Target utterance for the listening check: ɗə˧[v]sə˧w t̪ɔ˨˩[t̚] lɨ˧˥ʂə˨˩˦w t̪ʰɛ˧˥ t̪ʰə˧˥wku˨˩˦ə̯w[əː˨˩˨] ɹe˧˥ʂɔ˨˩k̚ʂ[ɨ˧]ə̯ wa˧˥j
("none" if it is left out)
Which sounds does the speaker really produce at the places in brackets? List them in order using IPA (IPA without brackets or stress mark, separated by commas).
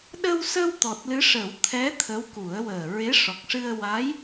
w, t̚, əː˨˩, ɨ˧